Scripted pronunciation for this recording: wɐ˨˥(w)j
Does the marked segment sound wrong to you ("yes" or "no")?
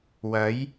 yes